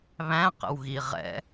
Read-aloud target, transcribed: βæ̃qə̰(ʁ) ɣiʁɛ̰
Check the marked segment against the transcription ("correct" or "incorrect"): incorrect